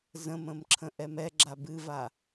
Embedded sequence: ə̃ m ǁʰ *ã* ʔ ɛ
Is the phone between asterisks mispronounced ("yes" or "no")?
yes